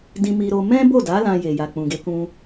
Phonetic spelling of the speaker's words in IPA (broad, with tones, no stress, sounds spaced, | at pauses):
d ĩ˧ m i˧ ɾ o˧ m ɛ̃˦ b o˦˨ d a˨˦ l ã˧ j e˨ j a˨ k͡p ũ˨ ɡ e˧ k ũ˧